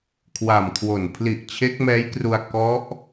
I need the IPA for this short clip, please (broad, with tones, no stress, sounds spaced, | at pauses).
kʰ w a˨˩ m kʰ w o˨˩ n pʰ l i˨˩ ʔ t͡ɕʰ e˦˥ k̚ m ɛː˦˥ j k r u˧ a̯ k ɔ˦˥ ʔ